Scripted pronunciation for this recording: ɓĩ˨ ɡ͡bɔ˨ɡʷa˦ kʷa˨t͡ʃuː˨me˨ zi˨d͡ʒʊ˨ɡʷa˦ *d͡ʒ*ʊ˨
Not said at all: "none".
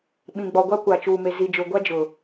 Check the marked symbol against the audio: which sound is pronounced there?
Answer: d͡ʒ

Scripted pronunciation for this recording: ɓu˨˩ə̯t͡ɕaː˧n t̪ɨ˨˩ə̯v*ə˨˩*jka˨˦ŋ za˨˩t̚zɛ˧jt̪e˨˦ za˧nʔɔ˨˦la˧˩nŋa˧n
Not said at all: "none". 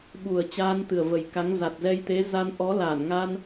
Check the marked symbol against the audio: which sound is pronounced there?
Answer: ə˨˩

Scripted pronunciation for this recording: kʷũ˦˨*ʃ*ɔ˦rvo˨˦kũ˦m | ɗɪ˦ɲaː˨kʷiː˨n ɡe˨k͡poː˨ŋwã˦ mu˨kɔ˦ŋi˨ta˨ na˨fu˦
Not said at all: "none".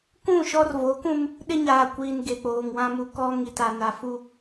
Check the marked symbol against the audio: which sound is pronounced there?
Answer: ʃ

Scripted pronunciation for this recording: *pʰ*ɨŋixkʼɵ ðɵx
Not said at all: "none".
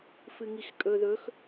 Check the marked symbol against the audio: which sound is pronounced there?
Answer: f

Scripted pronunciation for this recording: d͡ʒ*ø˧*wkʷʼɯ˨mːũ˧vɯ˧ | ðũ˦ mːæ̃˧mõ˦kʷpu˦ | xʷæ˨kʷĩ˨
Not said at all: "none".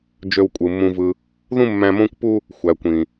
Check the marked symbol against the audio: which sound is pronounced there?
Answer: ø˧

